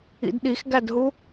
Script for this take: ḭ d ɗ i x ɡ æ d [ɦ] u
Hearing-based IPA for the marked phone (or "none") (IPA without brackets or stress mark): ɦ